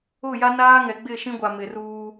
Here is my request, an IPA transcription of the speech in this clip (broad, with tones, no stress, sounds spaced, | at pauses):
ʊ˦˨ j a˦ n aː˦ ŋ ɛ˨ ɡ͡b ɪ˦˨ ʃ ĩ˦ ɡʷ a˨ m ɪ˨ r uː˦